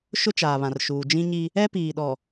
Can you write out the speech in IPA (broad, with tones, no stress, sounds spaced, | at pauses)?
ʃ ʊ˦ t͡ʃ aː˨ β ã˨ r ʃ uː˨ d͡ʒ ĩ˦ ɲ i˦ | ɛ˦ p iː˨ ɗ ɔ˨